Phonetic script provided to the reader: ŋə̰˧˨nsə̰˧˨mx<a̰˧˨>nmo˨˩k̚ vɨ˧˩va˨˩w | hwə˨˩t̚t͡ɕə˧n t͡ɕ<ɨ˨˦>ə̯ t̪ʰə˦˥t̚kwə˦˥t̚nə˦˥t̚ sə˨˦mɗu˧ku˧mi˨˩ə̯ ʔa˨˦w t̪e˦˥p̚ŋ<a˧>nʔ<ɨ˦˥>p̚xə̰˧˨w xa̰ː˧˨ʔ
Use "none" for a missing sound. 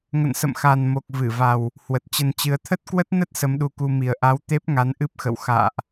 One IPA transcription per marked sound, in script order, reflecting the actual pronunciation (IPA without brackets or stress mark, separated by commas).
a˨˩, ɨ˨˦, a˨˦, ɨ˦˥